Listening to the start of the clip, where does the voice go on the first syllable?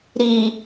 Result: low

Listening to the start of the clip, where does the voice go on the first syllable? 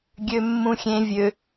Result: high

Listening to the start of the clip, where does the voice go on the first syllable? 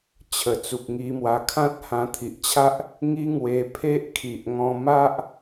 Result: low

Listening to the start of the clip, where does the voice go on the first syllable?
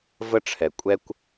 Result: high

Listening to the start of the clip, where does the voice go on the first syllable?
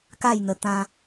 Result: falling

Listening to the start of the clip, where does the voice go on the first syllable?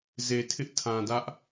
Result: low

